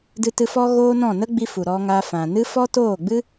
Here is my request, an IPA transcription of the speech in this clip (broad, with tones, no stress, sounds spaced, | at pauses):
d ɨ˧ t ɨ˧ f ɔ˦ ɣ oː˦ n ɔ̃˦˨ n ə˦ ɡ͡b i˧ f u˨ ɾ ɔ˧ ŋ a˧ f ã˨ n ɨ˦ f ɔ˦ t oː˦˨ ɡ͡b ɨ˦